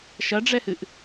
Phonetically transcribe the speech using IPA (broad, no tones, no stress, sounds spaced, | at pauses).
ʃ ɐ ɖ͡ʐ ɛ h ɨ ʔ